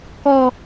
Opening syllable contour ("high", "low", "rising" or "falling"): high